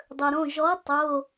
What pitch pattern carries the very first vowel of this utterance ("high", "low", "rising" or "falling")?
low